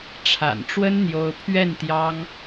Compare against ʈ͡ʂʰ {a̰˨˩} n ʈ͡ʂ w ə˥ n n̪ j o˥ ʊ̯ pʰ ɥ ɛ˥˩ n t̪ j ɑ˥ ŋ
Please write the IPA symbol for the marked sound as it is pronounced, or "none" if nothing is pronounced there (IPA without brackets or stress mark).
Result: a̰˨˩